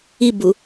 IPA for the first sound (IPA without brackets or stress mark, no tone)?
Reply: i